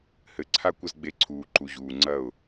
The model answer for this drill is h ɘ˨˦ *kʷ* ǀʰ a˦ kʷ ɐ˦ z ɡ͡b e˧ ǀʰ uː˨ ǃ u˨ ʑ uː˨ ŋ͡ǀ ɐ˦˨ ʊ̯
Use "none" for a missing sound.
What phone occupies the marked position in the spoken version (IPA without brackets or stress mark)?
none